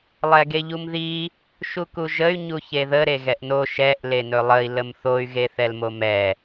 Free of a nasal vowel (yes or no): yes